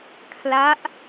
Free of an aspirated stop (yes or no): no